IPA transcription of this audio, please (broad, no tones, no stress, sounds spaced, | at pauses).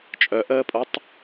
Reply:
t͡ʃʼ œ ʔ əː pʼ o tˤ